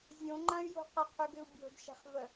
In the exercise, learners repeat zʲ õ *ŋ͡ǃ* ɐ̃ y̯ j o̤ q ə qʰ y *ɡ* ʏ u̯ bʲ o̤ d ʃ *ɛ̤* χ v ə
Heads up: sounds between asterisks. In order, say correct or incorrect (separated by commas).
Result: correct, correct, correct